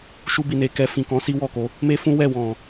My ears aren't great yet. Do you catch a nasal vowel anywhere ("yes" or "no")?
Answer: yes